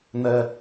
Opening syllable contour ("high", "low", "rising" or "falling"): high